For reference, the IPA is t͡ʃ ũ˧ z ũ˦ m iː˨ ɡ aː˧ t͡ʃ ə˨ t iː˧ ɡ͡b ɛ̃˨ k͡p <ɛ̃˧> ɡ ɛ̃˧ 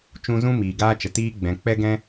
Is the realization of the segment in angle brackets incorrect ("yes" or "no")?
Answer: yes